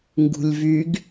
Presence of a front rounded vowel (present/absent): present